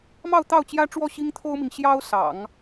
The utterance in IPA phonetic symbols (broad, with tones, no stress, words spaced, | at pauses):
mɑ˥˧ʊ̯t̪ɑ˥˩ʊ̯t͡ɕjä˥ʈ͡ʂwɔ˥˩ ɕi˥ŋt̪ʰo˥ʊ̯mi˨ŋ ɕjɑ˥ʊ̯sɑ̰˨˩˦ŋ